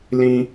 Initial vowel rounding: unrounded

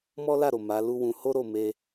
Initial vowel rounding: rounded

